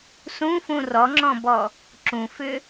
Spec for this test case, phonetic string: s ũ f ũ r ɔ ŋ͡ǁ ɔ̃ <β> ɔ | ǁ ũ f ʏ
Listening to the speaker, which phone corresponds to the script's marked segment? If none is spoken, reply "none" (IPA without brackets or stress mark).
b